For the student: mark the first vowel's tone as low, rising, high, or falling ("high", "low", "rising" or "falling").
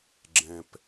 low